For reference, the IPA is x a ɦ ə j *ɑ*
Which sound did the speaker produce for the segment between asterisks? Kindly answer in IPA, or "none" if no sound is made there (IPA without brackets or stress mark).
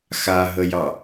ɑ